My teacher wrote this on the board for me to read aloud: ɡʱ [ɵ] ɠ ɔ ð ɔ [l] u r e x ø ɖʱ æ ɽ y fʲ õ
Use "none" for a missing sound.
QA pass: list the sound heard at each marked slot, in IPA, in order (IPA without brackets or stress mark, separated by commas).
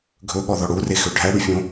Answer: ɵ, ɽ